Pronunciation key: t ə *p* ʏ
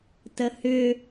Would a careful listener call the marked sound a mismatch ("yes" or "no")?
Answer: yes